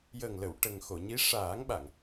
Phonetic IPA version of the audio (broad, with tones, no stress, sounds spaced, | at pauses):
j əː˨˩ ŋ l ə˨˩˨ w ʈ ə˨˩ ŋ x o˨˩˨ ɲ i˧˥ ʂ aː˨˩˦ ŋ ɓ a˨˩˨ ŋ